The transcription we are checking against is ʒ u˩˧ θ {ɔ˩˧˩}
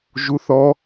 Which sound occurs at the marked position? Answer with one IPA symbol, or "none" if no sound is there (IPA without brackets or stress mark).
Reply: ɔ˩˧